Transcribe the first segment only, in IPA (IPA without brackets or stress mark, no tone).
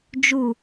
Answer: d͡ʒ